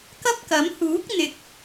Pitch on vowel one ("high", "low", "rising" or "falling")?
high